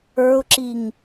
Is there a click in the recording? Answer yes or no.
yes